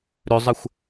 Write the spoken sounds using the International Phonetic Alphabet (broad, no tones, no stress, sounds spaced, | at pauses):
ɾ ø zˤ ə xʷ